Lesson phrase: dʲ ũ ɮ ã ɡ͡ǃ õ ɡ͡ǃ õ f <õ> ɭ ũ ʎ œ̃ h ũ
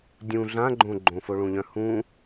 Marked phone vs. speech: incorrect: o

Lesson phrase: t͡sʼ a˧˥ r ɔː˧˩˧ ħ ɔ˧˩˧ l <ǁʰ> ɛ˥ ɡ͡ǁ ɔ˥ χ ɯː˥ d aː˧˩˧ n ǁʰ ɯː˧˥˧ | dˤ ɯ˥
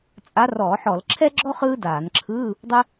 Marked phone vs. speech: correct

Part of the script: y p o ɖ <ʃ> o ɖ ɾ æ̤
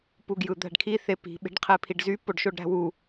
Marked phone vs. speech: correct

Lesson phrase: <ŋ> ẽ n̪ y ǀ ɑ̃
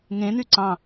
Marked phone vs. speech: correct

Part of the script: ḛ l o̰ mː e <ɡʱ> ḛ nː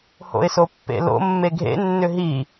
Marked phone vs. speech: correct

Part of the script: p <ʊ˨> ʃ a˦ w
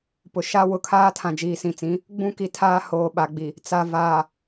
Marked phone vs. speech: correct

